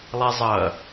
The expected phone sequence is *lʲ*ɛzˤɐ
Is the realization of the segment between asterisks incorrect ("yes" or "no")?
yes